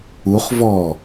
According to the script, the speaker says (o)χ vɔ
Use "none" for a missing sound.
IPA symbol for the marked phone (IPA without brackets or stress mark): u